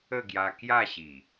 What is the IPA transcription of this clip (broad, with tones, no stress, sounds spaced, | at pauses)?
ə˥˧ ɡ j a˧ k j a˥˧ ɕ i˨˩